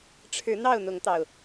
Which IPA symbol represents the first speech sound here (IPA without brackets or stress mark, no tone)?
ʈ͡ʂʰ